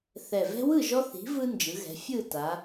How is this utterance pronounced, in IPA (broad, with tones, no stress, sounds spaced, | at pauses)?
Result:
θ ɛ˨˩ v ɛ̤˦ w ɯ˥˨ ʒ ɔ˦ θ i̤˨˥ v ɯ˦ n d͡ʒ ɯ˩˧ ɣ ɛ̤˩˧ fʲ ɯ˥˨ t a˩˧